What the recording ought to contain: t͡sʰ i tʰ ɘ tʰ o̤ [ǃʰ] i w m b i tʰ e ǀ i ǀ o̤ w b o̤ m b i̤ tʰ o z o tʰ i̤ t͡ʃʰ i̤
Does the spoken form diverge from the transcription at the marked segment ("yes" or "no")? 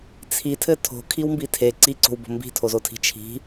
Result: yes